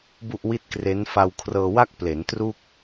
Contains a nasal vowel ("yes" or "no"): no